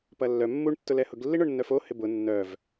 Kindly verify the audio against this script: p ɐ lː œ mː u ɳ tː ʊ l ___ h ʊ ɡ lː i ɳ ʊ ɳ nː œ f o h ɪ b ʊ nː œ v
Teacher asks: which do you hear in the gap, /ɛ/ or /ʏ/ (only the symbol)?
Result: ɛ